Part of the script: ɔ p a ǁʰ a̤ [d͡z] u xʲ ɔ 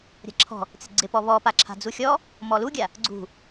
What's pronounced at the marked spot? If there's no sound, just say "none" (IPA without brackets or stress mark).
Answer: d͡z